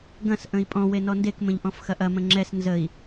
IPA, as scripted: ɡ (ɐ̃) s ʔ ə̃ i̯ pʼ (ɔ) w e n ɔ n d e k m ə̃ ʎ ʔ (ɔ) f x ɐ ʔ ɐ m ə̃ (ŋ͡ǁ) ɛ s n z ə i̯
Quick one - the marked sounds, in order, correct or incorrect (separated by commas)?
correct, incorrect, incorrect, correct